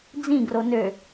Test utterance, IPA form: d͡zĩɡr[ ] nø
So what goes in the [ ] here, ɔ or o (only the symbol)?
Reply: o